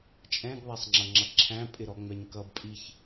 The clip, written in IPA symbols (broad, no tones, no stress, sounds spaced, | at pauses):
t͡ʃʼ ɛ̃ ɡ ðˤ æ sˤ ŋ͡ǁ ʌ ŋ͡ǁ ʌ ǁʰ æ̃ pʼ ɪ ɾ ɔ ŋ͡m ɛ ɲ k ʌ b pʼ i ç